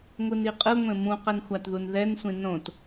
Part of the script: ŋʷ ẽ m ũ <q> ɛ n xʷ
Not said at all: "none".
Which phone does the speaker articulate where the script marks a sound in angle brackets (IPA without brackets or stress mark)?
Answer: q